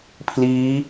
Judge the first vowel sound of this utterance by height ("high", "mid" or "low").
high